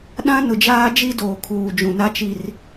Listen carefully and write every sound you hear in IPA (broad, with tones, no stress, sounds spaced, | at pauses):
ɗ ã˦ n ʊ˨ d͡ʒ aː˦ d͡ʒ i˦ d oː˨ kʰ uː˨ d͡ʒ ũ˨ n a˦ t͡ʃ i˨ r